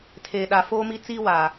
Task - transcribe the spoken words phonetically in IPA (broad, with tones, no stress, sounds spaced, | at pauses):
tʰ eː˨ ɗ a˨ f oː˦ m i˦ t͡s iː˦ w aː˨